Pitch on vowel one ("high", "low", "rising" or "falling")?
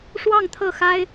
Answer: falling